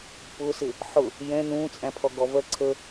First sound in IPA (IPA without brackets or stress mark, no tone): p